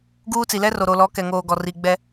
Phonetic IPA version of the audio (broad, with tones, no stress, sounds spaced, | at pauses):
ɡ uː˦ t͡s i˨ l ɛ˦ r o˨ ɾ o˨ l ɔ˨˦ k ɛ˨ ŋ oː˨ ɡ ɔ˨ r i˨ ɡ͡b ɛ˦